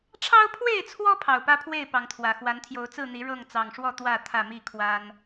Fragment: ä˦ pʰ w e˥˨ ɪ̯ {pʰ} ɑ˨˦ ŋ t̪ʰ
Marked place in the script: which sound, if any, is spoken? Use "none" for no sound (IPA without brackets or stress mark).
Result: p